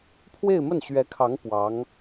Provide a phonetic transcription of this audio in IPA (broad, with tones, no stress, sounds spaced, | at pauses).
pʰ w e˥˧ ɪ̯ m ə˥˩ n ɕ ɥ ɛ˧˥ kʰ ɑ˧˥ ŋ p w ɑ˧˥ ŋ